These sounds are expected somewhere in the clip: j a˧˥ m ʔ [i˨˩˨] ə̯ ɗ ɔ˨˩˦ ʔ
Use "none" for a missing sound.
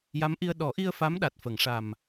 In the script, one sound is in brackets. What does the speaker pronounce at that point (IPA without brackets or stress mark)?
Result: i˧